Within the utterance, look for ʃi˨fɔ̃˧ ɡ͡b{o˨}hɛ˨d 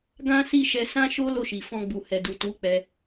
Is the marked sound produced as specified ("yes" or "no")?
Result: no